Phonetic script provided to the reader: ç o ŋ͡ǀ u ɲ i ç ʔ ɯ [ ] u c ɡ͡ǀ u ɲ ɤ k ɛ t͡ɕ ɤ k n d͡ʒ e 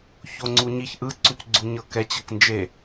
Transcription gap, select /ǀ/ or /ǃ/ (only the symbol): ǀ